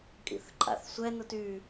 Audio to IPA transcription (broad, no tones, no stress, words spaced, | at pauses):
kʼḭθǃʼa̰θsʷɛ nʊty